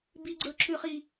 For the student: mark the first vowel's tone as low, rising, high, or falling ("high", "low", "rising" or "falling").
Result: high